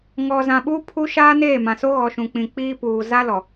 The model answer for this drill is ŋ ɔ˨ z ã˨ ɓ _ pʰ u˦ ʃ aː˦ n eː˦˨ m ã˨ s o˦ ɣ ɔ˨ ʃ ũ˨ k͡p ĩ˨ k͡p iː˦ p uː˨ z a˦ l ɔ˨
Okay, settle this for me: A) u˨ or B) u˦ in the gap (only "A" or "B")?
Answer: B